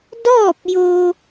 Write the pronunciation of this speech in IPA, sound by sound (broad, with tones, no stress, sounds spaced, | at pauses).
d ɔː˥˨ p̚ j o˧